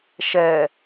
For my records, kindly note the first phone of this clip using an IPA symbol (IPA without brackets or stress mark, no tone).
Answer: ʃ